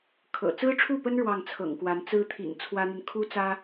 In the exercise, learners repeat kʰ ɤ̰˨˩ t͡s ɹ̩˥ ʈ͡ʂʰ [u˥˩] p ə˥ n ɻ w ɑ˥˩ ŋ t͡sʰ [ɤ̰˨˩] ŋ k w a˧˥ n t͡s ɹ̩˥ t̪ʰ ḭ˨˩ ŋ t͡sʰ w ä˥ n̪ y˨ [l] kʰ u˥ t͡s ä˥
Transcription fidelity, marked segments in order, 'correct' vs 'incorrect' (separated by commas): correct, correct, incorrect